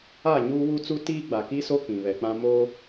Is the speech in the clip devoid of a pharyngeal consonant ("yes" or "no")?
yes